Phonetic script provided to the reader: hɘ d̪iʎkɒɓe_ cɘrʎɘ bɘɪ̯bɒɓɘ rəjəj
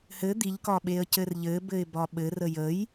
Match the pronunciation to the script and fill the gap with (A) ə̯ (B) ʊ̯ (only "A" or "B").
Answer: A